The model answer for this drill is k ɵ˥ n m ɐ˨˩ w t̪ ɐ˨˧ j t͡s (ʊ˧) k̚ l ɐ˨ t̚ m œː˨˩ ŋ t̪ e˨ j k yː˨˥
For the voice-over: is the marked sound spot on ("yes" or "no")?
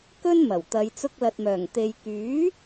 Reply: yes